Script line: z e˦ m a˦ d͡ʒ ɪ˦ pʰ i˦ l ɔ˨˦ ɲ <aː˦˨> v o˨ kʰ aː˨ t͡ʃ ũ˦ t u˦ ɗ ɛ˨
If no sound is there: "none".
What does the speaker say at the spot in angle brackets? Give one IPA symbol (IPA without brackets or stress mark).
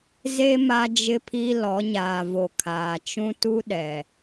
aː˨